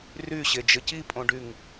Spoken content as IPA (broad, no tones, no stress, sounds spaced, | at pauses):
r y ɕ e d͡ʒ ə c i pʼ õ ɖ y ŋ